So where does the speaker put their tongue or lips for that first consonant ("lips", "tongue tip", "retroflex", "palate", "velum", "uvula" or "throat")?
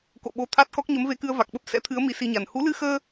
velum